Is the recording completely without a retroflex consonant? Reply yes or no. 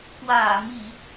yes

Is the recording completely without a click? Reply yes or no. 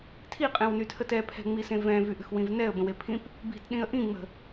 yes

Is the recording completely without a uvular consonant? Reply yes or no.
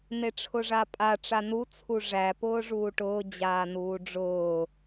yes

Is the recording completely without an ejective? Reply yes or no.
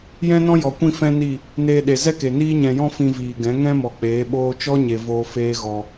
yes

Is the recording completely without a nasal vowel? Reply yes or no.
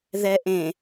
no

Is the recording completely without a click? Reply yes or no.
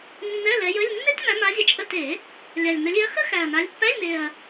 yes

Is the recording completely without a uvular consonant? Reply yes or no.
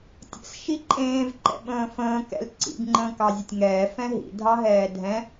yes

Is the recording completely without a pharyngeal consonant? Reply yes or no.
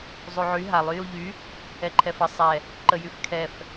no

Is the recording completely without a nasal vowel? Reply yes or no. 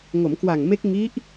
yes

